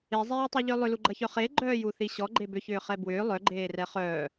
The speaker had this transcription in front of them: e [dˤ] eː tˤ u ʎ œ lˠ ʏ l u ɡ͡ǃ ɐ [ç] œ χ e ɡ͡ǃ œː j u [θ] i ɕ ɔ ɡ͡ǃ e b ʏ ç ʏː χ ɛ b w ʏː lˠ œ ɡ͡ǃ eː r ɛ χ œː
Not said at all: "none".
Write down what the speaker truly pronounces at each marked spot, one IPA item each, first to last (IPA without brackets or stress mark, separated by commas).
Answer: zˤ, ç, θ